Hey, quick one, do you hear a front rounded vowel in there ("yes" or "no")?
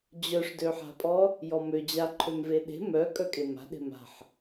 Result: yes